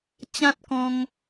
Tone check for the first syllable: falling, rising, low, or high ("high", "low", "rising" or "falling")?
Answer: high